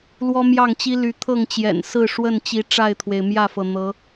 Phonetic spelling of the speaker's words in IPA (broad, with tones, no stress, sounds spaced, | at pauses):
l w ɔ˦ m j ɑ˥˨ ŋ t͡ɕ i˦ l y˨˦ t̪ʰ ɤ˥˨ ŋ t͡ɕ j ɛ̰˨˩ n s ɹ̩˥˨ ʂ w ə˥˨ n t͡ɕ i˨˦ ʈ͡ʂ a˥˨ ɪ̯ t̪ʰ w e˩ ɪ̯ m j ä˥˨ f ɤ˩ n̪ ɤ˨˦